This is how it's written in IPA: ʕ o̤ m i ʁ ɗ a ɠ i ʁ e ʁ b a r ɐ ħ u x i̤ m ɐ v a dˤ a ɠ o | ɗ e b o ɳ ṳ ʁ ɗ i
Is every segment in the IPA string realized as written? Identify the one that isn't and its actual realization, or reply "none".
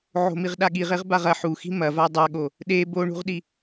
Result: r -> ʁ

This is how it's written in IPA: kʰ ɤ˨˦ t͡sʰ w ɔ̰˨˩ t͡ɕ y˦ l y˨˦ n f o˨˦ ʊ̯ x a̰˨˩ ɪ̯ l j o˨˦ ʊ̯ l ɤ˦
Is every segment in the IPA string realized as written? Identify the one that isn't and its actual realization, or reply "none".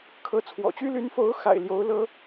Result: none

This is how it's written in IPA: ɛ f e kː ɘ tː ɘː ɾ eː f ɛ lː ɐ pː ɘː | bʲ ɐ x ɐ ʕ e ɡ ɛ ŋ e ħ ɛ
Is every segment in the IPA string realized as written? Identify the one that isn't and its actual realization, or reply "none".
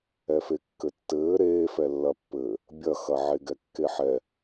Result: ŋ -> kː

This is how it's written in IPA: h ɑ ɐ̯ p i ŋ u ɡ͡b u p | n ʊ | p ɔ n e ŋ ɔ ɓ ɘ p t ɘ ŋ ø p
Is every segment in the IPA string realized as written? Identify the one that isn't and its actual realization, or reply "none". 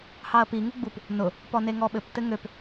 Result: none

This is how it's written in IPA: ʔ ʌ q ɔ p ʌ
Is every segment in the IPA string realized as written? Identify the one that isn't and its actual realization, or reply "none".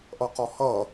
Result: p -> h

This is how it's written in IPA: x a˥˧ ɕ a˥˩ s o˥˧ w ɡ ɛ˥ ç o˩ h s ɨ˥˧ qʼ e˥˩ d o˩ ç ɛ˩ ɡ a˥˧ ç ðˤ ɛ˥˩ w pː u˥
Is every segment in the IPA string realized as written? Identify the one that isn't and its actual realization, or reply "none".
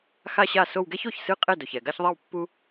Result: h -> ç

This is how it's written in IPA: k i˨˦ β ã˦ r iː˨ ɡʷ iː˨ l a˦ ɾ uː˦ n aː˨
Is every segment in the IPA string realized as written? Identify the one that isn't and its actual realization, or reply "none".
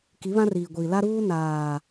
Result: none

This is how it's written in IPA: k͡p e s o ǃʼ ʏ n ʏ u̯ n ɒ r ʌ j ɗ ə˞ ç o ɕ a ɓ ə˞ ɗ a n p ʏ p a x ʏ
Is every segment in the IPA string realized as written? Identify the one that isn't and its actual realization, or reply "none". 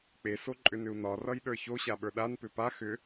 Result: none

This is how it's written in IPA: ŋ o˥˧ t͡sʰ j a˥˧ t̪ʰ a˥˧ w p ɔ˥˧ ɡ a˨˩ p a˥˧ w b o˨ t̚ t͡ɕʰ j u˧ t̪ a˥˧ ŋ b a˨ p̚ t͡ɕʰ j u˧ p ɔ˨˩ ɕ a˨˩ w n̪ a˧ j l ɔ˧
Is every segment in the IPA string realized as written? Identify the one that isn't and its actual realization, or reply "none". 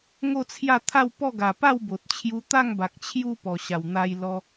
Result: p̚ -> k̚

